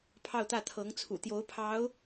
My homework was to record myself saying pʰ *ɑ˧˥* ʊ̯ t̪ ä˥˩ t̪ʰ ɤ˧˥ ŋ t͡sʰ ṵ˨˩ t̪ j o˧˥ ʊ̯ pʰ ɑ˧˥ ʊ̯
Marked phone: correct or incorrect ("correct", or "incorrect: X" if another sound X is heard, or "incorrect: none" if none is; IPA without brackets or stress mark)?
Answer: incorrect: ɑ˥˧